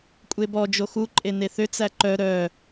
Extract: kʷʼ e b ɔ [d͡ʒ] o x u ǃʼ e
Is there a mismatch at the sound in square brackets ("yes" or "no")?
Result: no